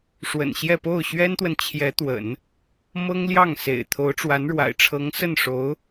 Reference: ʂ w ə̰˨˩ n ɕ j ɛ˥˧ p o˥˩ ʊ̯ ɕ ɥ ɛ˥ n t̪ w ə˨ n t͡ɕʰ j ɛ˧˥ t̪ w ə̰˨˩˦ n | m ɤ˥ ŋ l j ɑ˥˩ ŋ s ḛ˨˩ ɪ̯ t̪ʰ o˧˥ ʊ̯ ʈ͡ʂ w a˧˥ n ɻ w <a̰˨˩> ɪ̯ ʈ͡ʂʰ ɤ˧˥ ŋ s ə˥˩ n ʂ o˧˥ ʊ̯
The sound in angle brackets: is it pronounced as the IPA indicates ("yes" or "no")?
yes